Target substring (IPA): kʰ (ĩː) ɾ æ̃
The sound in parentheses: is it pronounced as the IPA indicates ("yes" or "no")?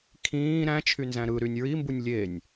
yes